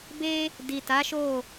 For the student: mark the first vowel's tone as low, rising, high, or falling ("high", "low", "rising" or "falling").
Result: high